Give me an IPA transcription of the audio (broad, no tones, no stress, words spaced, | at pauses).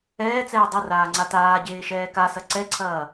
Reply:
ɛːt͡sɛː dˤɐraːŋ͡ǀa taːɟeːʃɛː kasɐ ǀɛǀʰɐː